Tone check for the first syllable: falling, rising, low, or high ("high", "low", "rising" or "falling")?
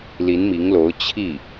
rising